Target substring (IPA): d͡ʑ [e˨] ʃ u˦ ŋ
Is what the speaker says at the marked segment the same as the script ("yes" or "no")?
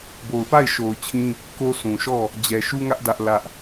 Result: no